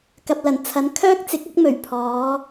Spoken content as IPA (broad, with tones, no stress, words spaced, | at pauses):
kɐ˧p̚lɐ˨˩n t͡sʰɐ˨˥nkʰœː˥k̚t͡sɪ˨˥k̚ ɐ˥k̚mɵ˨˩ɥ pʰɔː˨˧